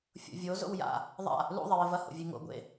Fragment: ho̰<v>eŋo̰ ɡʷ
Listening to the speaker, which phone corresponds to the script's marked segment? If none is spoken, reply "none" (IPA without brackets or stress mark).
vʲ